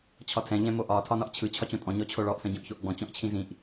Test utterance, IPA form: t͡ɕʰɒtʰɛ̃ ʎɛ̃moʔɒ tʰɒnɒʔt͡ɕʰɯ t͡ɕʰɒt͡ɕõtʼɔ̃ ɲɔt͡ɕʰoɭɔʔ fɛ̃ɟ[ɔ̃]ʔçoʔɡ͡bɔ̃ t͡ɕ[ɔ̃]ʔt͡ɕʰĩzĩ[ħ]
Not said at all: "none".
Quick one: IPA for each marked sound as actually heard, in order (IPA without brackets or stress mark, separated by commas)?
õ, ɔ̃, ʔ